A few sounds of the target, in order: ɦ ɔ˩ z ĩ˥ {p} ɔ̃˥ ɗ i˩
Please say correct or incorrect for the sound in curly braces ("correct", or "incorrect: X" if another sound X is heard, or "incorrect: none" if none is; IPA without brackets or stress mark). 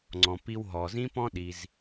correct